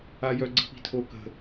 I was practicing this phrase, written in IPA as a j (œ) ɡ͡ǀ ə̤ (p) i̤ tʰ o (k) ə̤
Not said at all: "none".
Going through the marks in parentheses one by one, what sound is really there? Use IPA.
œ, p, k

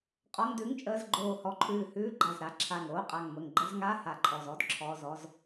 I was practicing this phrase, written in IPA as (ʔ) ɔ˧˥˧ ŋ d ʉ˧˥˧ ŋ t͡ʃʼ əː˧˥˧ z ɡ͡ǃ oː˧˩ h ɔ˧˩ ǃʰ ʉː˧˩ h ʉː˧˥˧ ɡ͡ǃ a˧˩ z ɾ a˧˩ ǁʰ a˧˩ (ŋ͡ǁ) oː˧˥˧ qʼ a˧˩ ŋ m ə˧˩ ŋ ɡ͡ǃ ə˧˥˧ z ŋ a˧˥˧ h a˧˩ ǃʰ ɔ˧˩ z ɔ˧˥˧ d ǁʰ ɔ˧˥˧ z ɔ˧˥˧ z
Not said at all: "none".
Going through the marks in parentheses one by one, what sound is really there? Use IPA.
qʼ, ŋ

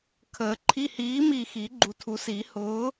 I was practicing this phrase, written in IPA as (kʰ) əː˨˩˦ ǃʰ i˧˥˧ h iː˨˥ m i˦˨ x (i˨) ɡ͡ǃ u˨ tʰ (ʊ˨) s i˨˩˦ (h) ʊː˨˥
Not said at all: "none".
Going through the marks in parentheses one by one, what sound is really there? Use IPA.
kʰ, i˨˩˦, u˨, h

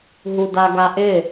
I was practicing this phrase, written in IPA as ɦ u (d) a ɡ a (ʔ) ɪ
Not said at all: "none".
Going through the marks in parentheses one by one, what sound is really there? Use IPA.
d, ʔ

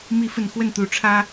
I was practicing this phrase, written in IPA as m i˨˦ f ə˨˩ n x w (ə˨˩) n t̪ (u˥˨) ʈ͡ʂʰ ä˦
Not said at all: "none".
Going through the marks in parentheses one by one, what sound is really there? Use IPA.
ə˥˨, u˨˦

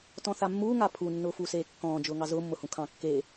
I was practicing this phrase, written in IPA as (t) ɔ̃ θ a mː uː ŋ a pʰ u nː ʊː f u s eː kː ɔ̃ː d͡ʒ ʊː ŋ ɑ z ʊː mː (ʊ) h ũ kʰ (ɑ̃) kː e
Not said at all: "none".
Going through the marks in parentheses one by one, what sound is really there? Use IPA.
t, ʊ, ɑ̃

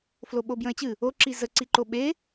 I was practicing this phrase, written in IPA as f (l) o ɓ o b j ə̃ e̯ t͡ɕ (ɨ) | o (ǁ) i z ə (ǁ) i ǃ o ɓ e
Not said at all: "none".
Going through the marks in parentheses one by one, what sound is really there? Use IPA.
l, ɨ, ǁ, ǀ

